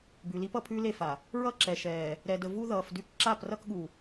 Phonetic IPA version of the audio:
b ʉ˨ l i˦ p ʌ˨ pʰ ʉː˦ l e˦˨ f a˨ | ɹ ʌ˦ ǁ ɛ˨ ʃ ɛː˨ | ɾ ɛ˨ d ə˨ v u˦ ð ʌː˨ f d ʉ˦ k ǁ a˦˨ p r ʌ˦ k ɠ u˨

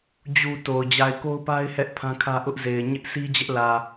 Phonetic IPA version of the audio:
d͡ʑ u˨ t o˨ ʊ̯ d͡ʑ a˨ ɪ̯ k o˦ ʊ̯ p a˦ ɪ̯ h ɛ˦ ʔ pʰ ã˦ kʰ ä˦ ʔ ʊ˦ ʔ z e˨ ɪ̯ ɲ ɪ˦ ʔ sʰ i˦ d͡ʑ ɛ˦ ʔ l ä˨

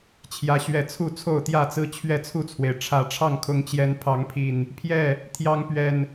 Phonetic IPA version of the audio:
t͡ɕʰ j ä˨˦ ɕ ɥ ɛ˨˦ t͡sʰ u˥˨ t͡sʰ o˥˨ ʊ̯ t̪ j ä˥˨ t͡s ɹ̩˦ t͡ɕʰ ɥ ɛ˥˨ t͡sʰ u˥˨ t͡sʰ w e˩ ɪ̯ ʈ͡ʂʰ ä˨˦ ʈ͡ʂʰ ɑ˥˨ ŋ kʰ ʊ˨˦ ŋ t͡ɕ j ɛ˨˦ n pʰ ɑ˨˦ ŋ pʰ i˨˩ n | pʰ j ɛ˥˨ | t̪ʰ j ɑ˦ ŋ p ɥ ɛ˨˩ n

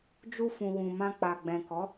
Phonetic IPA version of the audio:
d͡ʒ u˧ f ũ˨ w ũ˨ m ã˧ k͡p a˨ ɡ͡b ɛ̃˨ k ɔ˨˦

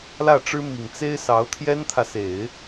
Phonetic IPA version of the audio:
l ä˥˩ ʈ͡ʂ ɻ̩˥ m i˨˩ ŋ t͡s e˥ ɪ̯ s ɑ˧˥ ʊ̯ t̪ʰ j ɛ˥ n t̪ʰ ä˨ s e˨˩˦ ɪ̯

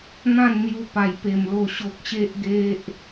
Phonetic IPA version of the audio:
n̪ ã˥˧ n n̪ j u˧ p a˨˩ j p e˨˩ m l o˨˩ ɕ o˨ k̚ ɕ e˦ ʔ ɡ e˦ ʔ

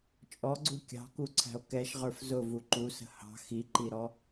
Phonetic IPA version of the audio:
t͡ʃʼ ɔ ɡ͡ǀ u kʲ ɑ̤ k u ǀʰ æ̤ o̯ k ɛ ʃ ʁ ə˞ f z ʊ v u ǃ u s ə̤ h ɑ̤ x i ǃ i ɾ ɔ

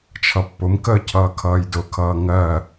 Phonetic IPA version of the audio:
t͡ʃʰ ʌ pː ʊ m k əː cʰ ʌː kʰ ʌː j d ʊ kʰ ʌː ŋ ɜ

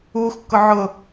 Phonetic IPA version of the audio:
uː x kː ʊ ʕ ʊ

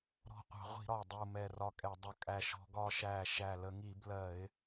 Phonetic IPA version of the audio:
ɾ ɔ̤˧˩ qʷ ɑ̤˧˩˧ ʁʷ i̤˧˩˧ ɾ ɒ˧˩ ʊ̯ dˤ u˧˩ m ɛ˧˩ r ɒ˧ kʼ ɛ˧˩˧ dˤ ʌ˧˩ kʼ æ˧˩ ʃ ɔ̤˧˩˧ ɡ ɒː˧ ʃ æː˧˩ ʃ æ˧˩ l ə˧˩˧ ŋ i˧˩˧ b l ɜ˧˩˧ ɪ̯

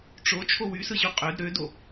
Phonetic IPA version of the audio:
ʈ͡ʂ o t͡ʃʰ o w y s ɯ ʑ u qʼ ø d ɾ ø d o

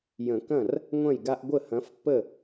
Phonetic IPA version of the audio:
j ə̃˨˩˦ k ɐ̃˥˩ r | ŋʷ ɐ̃˥˩ j ɡ a˦ ʔ ɡʷ ə˥˩ h ɐ̃˨˥ f pː ə˥˩

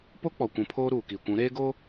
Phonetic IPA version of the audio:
p o˦ k͡p ɔ˨ kʷ ũ˨˦ pʰ oː˦ ɾ uː˨ k i˨ kʷ ũ˨˦ ɾ eː˦ ɡ o˦

